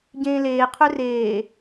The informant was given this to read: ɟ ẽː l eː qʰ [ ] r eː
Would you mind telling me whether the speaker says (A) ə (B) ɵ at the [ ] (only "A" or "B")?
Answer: B